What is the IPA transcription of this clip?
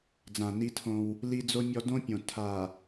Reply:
d͡z ã˨ n i˦ tʰ õ˦ w | l i˦ d͡z o˦ mʲ ɔ˦ d õ˦ pʲ õ˨ tʰ a˨

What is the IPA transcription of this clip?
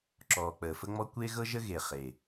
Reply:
ǁ ɔː˨ k͡p əː˨ f ə˦ ŋ͡m ɔ˦ kʷ e˦ ɣ ɤ˦ ʒ ə˦ ɣ e˨ χ e˨

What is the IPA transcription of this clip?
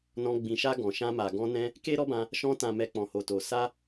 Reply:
n ɔ̃˧ ɡ͡b ĩ˨ ʃ a˧ ɡ ɔ̃˨ ʃ ã˧ m a˨ ɡ ɔ̃˧ n ɛ̃˧ | k e˦ ɾ ɔ˦ b ã˧ | ʃ ɔ̃˧ t ã˨ m ɛ˧ k͡p ɔ̃˨ h o˨ t o˨ s a˧

